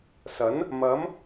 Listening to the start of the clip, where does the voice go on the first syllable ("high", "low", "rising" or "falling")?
rising